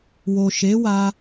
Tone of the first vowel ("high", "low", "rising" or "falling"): low